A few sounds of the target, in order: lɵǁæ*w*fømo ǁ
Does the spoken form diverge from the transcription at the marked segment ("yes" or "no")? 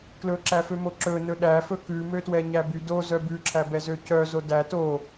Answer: yes